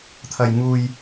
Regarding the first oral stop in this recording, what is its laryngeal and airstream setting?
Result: aspirated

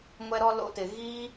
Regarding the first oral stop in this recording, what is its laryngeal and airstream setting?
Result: plain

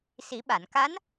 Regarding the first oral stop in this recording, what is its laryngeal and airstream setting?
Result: implosive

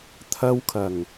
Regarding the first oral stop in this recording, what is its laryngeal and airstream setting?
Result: aspirated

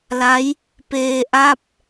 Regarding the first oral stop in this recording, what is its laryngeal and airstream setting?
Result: plain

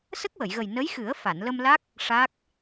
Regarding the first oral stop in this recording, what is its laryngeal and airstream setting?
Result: plain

